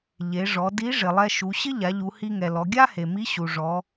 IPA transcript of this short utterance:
ʎ e˩˧ ʐ ɔ˩˧ d i˧˥ ʐ ɪ˩ lˠ ɛ˧ ʃ u˩˧ ɕ ɪ˥ ʎ a˩˧ ʎ u˩˧ h i˧ ŋ ɛ˩ l ɔ˩˧ ɡʲ a˥ h e˩ m i˧˥ ɕ u˩ ʐ ɔ˩˧

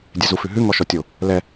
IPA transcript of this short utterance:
dʲ ɛ z u f ʉ ɦ ʉ ŋ ɔ ʃ ɔ tʲ o | l ɛ

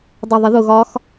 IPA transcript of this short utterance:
dˤ ʊ ðˤ ɪ ð ʊ ɣ ɒ x

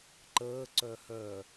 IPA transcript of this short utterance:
ǃ əː ǀ œ h œ

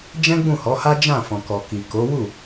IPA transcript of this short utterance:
d͡ʒ ɛ̃˦ ɡ͡b ũ˦˨ h ɔ˨˦ h a˦ d͡ʒ ã˦˨ f ɔ̃˨ k ɔ˨ k i˨ k o˨˦ w u˦˨

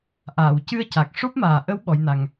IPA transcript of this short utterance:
ʔ aː˨˩˨ w c ɨ˧ ə̯ c a˨˩ k̚ ʂ o˦˥ p̚ m aː˨˩ ʔ ə˧˥ w ɓ ɔ˧˥ j n a˧ ŋ

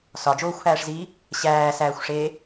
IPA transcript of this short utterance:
s ɒ d͡ʒ oː xʷ h æː ʂ z iː | ɕ æː s æː xʷ ʂ eː

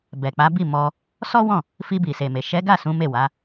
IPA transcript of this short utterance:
b ɛ˨ k͡p a˨˦ b i˦˨ m ɔ˧ | s ɔ˦ w ɔ̃˦˨ | f i˧ b i˨ s e˨ m e˨ ʃ ɛ˨˦ ɡ a˦˨ s ũ˨˦ m e˦˨ w a˨˦

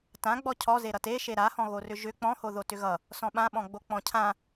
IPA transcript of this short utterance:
t ã ɡ͡b ɔ cʰ ɔ z e ɾ ʌ t e ʃ e ɾ a h ɔ̃ ɣ o r ʏ ʒ ʏ k͡p ɔ̃ h o ð o t ʏ ɣ ʌ | s ɔ̃ ɓ ã ɓ ɔ̃ ɡ͡b o k͡p ɔ̃ cʰ ã

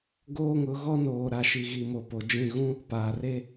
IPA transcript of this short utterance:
ɡ oː˦ ŋ ʊ˨˦ ɣ ɔ˦ n oː˨ ɾ a˨ ʃ i˨ ɣ i˨ m o˨ p o˨ d͡ʒ ĩ˦˨ ɣ ũ˦ | p aː˨ r e˦

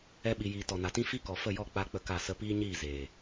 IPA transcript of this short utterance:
ɛ˧ ɓ i˨ j iː˨ t ɔ˨ n a˨ t ĩ˦ f i˦ k ɔ˨ f ə˦˨ j ɔ˦˨ k͡p a˦ k͡p ə˦˨ k a˦˨ s ə˦ p iː˦ ɲ iː˦˨ z eː˨

